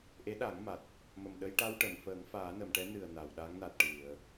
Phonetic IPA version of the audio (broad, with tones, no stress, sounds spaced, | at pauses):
ʔ e˧˥ ɗ a˨˩˦ ŋ m a˨˩ t̚ | m ə˨˩ m ɗ ə˧ j ʈ a˧ w ʈ ə˨˩˨ m f əː˨˩˦ ŋ f aː˨˩˦ n ə˨˩˨ m ʈ ɛ˧˥ n ɨ˨˩ ə̯ n a˨˩˨ w ɗ a˧˥ ŋ n a˨˩ t̚ ʈ ɨ˨˩˨ ə̯